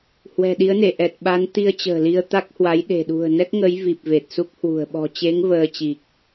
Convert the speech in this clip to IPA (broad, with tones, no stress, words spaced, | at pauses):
hwɛ̤˨˩ɗi˨˦ə̯ne˧˩ ʔɛ˨˩t̚ɓa˨˦n t̪i˧ə̯t͡ɕə̤ː˨˩li˧ə̯ t̪a˦˥k̚hwa˨˦j ɗe̤˨˩ɗṳ˨˩ə̯nɛ˦˥k̚ ŋə˨˦j vi˨˩p̚ve˨˩t̚su˦˥k̚ hwṳ˨˩ə̯ ɓɔ̤˨˩t͡ɕe˨˦ŋ vəː˧ t͡ɕi˨˩k̚